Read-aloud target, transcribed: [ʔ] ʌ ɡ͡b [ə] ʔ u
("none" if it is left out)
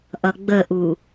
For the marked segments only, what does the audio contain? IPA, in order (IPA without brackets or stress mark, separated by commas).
ʔ, ə